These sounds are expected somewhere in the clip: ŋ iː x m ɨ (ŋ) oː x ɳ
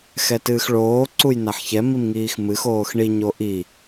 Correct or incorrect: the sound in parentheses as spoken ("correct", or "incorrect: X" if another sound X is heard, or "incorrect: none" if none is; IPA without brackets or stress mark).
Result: incorrect: x